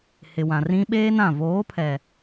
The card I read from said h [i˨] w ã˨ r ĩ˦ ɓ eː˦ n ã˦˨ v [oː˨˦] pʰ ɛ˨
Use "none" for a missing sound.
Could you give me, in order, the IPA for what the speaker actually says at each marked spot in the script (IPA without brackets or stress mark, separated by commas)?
ɪ˨, oː˨˦